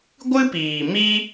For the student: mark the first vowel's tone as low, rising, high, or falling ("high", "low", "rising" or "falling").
high